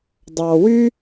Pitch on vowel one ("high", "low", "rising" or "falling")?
low